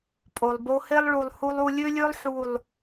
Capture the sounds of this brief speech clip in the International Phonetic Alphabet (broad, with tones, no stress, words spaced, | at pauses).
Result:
pʼo˨lˠ bo˧he˦lˠ ɭu˧lˠhu˦lˠ u˧lʲø˦lʲø˦lˠ ħu˦˨lˠ